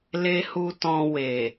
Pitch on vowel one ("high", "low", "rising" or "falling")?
high